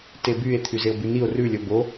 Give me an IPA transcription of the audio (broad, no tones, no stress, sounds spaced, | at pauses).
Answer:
t e b y e̯ t̪ʰ y z e o̯ b ʉ n i o̯ r ʉ lʲ ɔ b o